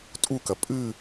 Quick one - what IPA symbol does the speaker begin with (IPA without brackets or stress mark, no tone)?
tʼ